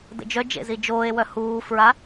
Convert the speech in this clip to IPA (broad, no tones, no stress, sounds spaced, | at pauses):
d ə̰ d͡ʒ œ d͡ʒ ḛ z i d͡ʒ oː e̯ w œ h uː f ɹ a